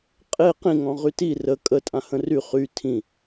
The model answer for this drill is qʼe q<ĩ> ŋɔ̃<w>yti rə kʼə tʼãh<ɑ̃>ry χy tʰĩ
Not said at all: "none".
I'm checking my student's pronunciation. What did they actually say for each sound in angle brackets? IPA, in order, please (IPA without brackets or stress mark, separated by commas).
ĩ, ʁ, ə̃